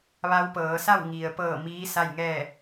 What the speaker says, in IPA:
ʋa˧wpɤː˩˧sa˥˨w ŋi˩ə̯ pɤː˧˩ miː˧˥sa˥˨jŋɛː˥˨

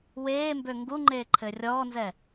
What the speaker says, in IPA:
weːmbø ŋɡuŋ͡ǃeː ǃʰɘːrʲɔːnzɛ

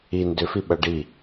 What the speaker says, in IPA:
i ndʏfiɓʌ ɖi

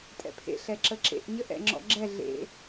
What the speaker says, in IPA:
tʼɛ̰pʰḛ ɬɛǁəǁḛʔ ɲəʔɛ̰ŋ͡ǁɔ̰ɡ͡ǁɛ ɮḛ

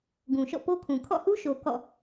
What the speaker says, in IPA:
ɡũ˨ʃɔ̰˦˨po˦kʰũ˨ kʰɔ̰˦˨hu˦ʃo˨ kɔ̰˦˨

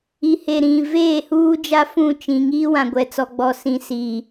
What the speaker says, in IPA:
i˨he˨ ɾĩ˨ veː˦˨huː˦d͡ʒa˦ fũ˦˨t͡ʃĩ˨ ŋiː˦wã˨ɡʷɛ˨t͡sɔ˨ ɡ͡bɔ˨sĩ˨ si˨

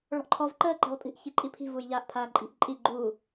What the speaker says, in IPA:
ɭɔ̤ʔǃʰɔv ǃəː ǃe̤lˠpʼi̤ʔ çiǃʼipʰi̤ vuːjʎaːʔpʰaːǃʼi̤ʔ ǃʼi ɡ͡ǃuː

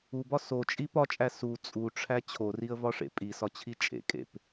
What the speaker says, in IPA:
ubɒ sot͡ʃʼi pɒt͡ʃʼæ su t͡sʼuʈ͡ʂʰæ t͡ɕʰoriə̯vɒʂḛ pʼisɒt͡ɕʰi t͡ʃʼḛkʼḛp

